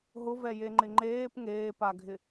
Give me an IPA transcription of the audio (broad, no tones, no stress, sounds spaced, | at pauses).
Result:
ɦ ʊ v ɛ j e ŋ͡ǃ ɪ ŋ͡ǃ eː p ŋ eː p a ɡʱ ɪ